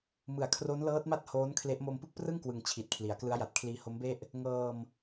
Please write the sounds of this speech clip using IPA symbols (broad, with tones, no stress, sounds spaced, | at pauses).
m ɯ˨˩ a̯ kʰ r o˦˥ n l ɤː˦˥ t̚ m a˥˩ t̚ h oː˦˥ n kʰ l e˦˥ ʔ m o˧ m p ɯ˥˩ k̚ p r ɯ˥˩ ŋ k w ɯ˩˦ ŋ t͡ɕʰ i˨˩ t̚ kʰ l i˩˦ a̯ k l ɯ˦˥ a̯ j a˨˩ t̚ kʰ l iː˧ h o˦˥ m b e˥˩ ʔ | ŋ ɤː˧ m